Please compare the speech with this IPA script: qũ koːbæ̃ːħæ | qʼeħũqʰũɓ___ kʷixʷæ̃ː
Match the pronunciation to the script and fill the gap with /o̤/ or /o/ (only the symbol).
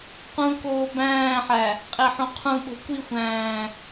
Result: o̤